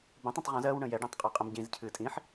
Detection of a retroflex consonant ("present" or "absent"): present